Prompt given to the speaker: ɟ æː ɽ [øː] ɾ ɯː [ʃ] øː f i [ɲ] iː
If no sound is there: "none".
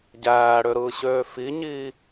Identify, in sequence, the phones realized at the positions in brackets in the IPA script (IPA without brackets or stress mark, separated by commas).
ø, ɕ, ɲ